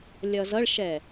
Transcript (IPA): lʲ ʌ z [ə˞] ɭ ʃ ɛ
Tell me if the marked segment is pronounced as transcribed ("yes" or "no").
no